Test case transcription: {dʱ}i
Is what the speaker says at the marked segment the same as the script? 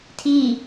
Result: no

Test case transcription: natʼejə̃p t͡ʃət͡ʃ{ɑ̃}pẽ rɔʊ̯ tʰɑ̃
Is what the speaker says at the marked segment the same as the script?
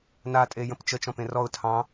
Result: no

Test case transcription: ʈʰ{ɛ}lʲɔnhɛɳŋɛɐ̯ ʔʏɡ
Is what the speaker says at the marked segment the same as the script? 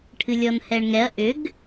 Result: no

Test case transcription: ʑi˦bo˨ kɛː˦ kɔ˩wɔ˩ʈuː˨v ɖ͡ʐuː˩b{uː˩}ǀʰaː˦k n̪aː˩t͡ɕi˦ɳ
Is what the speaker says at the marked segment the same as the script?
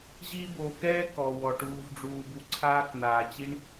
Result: no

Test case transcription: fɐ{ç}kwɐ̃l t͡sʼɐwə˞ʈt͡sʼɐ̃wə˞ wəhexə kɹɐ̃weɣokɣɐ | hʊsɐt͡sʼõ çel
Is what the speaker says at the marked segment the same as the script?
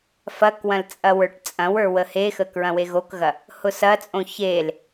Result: no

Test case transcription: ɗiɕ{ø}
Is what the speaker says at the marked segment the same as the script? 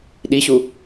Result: no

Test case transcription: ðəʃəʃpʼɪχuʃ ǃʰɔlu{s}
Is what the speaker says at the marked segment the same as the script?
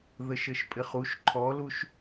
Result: no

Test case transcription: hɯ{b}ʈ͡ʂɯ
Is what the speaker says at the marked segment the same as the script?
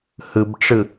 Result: yes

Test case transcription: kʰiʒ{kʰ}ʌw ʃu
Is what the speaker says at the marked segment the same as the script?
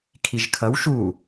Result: yes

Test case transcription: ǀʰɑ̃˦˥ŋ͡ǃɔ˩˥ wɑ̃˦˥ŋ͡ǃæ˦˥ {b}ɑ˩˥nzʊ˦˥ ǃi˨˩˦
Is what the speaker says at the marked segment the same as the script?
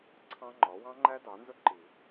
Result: no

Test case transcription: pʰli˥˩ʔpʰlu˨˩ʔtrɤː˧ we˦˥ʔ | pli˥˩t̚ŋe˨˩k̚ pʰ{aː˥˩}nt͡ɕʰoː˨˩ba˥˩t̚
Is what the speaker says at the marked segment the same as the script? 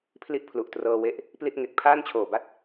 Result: yes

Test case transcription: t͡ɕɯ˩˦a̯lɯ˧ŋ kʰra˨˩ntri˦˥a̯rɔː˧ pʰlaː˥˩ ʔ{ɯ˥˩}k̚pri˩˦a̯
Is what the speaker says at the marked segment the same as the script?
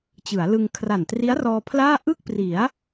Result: yes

